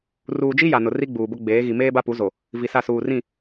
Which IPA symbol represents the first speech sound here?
r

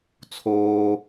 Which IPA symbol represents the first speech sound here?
t͡sʰ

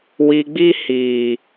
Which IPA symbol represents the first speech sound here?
w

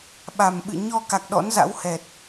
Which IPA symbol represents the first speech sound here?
ɓ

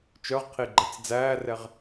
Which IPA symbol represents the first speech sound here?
t͡ʃ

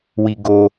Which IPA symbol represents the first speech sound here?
w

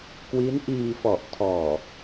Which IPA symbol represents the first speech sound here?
k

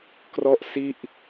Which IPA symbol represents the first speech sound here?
k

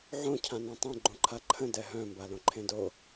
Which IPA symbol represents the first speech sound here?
ʕ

